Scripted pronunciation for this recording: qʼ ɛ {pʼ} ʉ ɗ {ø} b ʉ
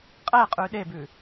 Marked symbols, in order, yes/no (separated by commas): no, no